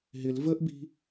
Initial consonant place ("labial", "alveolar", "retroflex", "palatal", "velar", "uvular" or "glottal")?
glottal